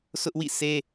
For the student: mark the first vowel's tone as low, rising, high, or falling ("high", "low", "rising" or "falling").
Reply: high